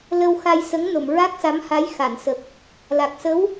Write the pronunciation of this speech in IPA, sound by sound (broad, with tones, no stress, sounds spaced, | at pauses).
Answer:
l ə˧ w x a˧ j s ə˧˥ ŋ n o˨˩˨ m ɹ a˦˥ k̚ s a˧˥ m h a˧˥ j x a˨˩˨ n s ə˨˩ k̚ | l a˨˩ k̚ s ə˧˥ w